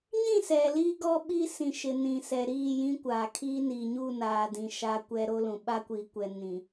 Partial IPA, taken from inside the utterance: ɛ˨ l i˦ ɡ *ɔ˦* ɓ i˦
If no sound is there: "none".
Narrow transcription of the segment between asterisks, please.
ɔ˦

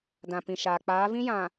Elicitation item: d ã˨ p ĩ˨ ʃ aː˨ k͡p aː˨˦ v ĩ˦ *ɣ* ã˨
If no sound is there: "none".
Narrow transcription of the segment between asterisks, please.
j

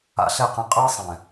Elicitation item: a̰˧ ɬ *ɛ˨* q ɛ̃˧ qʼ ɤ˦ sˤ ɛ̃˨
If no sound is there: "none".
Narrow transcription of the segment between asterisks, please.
ɛ˦˨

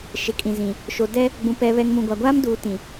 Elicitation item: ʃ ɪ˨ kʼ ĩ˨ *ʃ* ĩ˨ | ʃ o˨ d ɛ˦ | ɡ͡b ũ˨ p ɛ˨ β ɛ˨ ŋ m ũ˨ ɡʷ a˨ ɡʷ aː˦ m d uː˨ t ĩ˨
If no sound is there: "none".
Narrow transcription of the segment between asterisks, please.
z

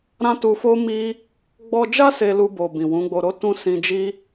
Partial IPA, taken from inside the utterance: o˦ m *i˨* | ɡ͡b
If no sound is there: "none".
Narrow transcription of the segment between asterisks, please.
i˦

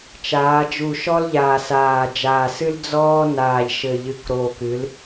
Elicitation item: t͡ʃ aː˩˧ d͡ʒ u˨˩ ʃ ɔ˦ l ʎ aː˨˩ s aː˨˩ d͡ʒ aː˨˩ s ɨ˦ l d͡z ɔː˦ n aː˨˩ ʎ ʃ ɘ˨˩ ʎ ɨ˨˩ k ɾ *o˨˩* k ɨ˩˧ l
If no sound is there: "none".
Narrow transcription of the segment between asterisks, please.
o˨˩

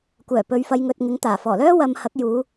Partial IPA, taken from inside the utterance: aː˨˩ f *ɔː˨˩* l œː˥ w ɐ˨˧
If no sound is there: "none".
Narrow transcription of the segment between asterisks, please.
ɔː˨˩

